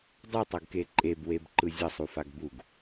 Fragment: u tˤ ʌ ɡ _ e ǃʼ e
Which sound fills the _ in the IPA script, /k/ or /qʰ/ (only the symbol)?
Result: k